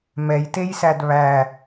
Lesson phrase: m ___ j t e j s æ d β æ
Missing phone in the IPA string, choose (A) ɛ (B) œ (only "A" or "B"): A